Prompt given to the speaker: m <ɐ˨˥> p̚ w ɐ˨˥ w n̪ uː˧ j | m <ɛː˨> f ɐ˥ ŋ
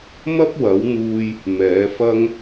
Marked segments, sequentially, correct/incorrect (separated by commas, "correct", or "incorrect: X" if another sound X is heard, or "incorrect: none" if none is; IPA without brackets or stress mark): incorrect: ɐ˥, incorrect: ɛː˨˥